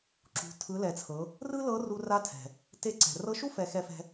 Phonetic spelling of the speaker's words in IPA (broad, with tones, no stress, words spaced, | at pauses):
ǁṳ˩˧ tʰɯ˩˧lɛ˩t͡sʰɤ˩˧ | rɯ˥lɤ˧˥ru˧ ra˧˥tʰɛ̤˩ | te˧˥ǀɛ̤˩ rɤ˧˥ʃu˥fɛ˩˧ xɛ˧fɛ̤˧